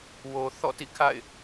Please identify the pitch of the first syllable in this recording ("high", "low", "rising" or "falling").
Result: low